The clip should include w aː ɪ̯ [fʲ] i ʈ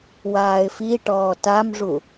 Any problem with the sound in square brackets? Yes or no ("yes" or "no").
yes